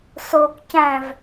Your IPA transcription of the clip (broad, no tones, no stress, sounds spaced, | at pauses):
s o k c æ̃ v